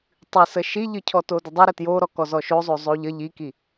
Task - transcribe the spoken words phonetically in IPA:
tˤ ɨ s ə ʃ i ʎ ɨ cʰ ɔ t o d ə dˤ o ɾ ə t j o ɾ ɔ k ɔ z ɔ ʃ o zˤ o zˤ o ʎ ə ʎ i k i

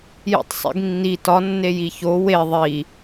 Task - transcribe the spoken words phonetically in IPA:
j ḭ tˤ sˤ ḭ ɡ nː i t ɒ nː e j i ç o w e ðˤ i

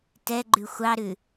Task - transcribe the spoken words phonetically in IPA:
t ɛ ɡ͡ǃ ʉ xʷ ɑ ɾ ʉ

